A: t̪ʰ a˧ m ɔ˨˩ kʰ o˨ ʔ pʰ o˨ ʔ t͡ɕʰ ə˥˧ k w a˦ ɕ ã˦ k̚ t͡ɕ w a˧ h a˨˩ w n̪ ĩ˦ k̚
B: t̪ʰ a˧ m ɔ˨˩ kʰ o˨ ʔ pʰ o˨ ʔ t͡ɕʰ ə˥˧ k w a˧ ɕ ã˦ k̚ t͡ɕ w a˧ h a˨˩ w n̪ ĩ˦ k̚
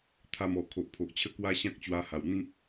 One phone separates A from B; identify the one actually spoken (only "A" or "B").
A